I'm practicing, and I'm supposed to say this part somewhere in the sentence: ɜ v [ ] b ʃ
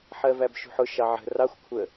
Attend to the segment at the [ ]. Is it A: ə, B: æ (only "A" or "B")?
B